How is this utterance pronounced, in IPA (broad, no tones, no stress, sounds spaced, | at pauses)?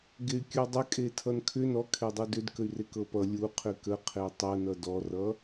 ɡ e y̯ kʲ u dˤ ə kʼ e tʰ ʌ n kʰ ʏ n ɔ kʰ e dˤ ʌ d ʏ d k ə y̯ r e k ɤ p ʌ lʲ u qʰ ʏ k ə qʰ e tˤ ɤ n ʌ d ɔ r ʌ